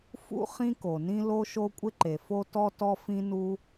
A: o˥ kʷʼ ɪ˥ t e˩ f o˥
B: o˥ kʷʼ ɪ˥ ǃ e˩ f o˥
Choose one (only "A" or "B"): B